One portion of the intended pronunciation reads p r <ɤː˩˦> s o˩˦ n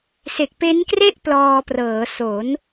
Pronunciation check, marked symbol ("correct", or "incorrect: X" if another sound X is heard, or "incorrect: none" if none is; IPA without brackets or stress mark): correct